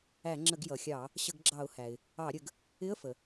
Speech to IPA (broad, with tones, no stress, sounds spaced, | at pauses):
æ˧˩˧ ŋ͡ǁ ə˧˩˧ ɡ j ʌ˩ xʲ ɑ˧˩˧ | ɕ ə˧˩˧ ɡ ɡ͡ǁ ɑ˧˩˧ ʊ̯ h æ˩ ɪ̯ | ɑ˧˩˧ ɾʲ ə˩˧ ɡ | ɪ˧˥˧ ə̯ f ə˩